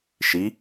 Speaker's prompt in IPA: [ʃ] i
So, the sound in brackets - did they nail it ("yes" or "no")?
yes